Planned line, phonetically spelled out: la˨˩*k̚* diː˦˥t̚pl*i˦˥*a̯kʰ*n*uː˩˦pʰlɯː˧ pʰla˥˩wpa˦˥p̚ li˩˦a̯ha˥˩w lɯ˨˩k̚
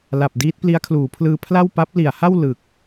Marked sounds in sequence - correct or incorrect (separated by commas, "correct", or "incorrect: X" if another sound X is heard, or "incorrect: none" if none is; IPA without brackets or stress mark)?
incorrect: p̚, correct, incorrect: l